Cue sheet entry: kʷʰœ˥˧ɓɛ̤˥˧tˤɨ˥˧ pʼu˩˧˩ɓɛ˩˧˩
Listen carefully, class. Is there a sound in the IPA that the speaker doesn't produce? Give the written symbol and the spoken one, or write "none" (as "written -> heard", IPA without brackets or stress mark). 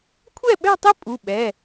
œ˥˧ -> ɛ˥˧